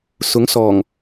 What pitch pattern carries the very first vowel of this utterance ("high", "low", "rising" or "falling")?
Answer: rising